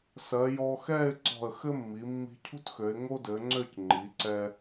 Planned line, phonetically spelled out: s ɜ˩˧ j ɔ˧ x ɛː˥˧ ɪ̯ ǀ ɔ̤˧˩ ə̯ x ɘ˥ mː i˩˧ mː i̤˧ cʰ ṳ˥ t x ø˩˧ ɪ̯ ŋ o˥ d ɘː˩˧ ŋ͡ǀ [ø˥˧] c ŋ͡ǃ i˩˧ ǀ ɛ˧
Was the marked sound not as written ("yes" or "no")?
no